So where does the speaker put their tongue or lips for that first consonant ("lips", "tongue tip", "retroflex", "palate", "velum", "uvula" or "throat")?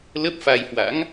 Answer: tongue tip